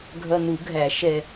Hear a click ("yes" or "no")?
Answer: no